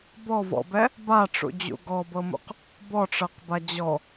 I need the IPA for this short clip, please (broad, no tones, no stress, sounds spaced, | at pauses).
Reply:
b ɔ v ɔ̰ b ɛ | b a ʈ͡ʂ ṵ d͡ʑ ṵ ɡ ɔ b ɤ m ṵ q | b ɔ ʈ͡ʂ ɤ q b a d͡ʑ ɔ